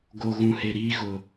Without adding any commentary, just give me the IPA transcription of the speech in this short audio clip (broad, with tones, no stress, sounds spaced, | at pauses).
ɡ o˨ ɣ ũ˨ h e˨ ɾ iː˦ ɣ ʊ˨